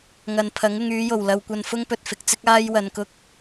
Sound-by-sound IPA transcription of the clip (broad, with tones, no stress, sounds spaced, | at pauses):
ŋ ɐ˨ n pʰ ɐ˨˥ ŋ ɪ˨ ŋ yː˨˧ j o˨˩ w l ɐ˧ w kʷ ɐ˧ n f ʊ˥ ŋ p ɵ˧ t̚ f ɪ˨ k̚ t͡s ɪ˥ k̚ aː˥ j w ɐ˨˧ n k ʊ˥ k̚